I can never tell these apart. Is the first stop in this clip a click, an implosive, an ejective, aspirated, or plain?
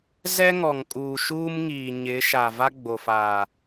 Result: ejective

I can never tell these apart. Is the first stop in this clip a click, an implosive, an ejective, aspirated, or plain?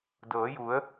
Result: plain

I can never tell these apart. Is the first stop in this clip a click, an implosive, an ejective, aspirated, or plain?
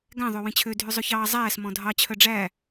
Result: plain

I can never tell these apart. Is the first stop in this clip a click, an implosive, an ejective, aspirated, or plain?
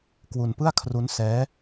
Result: plain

